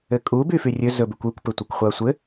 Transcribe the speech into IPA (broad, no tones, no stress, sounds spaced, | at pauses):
ɘ kʼ u b y f y rʲ ɵ z ɵ b y kʷ y kʷ p ɘ tʷ ɛ kʷ χʷ a sʷ ɘ